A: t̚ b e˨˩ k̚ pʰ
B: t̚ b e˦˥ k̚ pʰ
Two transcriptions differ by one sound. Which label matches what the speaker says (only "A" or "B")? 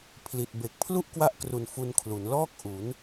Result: A